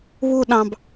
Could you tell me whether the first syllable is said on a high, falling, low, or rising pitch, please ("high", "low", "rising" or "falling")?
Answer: high